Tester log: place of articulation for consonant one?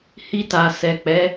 glottal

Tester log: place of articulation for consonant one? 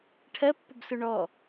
retroflex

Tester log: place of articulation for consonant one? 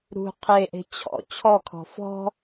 alveolar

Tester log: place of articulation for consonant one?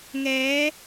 velar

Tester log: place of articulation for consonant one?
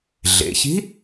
alveolar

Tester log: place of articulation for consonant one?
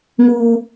velar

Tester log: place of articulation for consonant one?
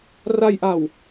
alveolar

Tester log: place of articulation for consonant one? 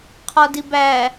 uvular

